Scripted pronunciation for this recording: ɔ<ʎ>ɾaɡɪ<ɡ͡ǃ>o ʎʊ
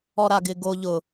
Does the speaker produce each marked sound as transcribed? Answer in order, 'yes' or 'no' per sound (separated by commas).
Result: no, no